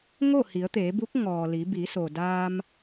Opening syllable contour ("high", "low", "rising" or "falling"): falling